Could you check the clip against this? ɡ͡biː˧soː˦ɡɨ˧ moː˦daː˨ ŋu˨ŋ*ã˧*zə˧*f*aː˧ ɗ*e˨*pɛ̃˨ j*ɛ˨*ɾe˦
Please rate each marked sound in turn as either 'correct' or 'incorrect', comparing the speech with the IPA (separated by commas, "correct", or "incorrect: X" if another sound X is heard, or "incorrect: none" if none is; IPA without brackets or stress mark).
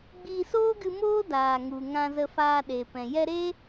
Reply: correct, correct, correct, incorrect: ɛ˧